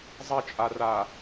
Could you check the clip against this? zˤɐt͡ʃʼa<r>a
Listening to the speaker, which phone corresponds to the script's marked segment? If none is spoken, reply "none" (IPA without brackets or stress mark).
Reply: r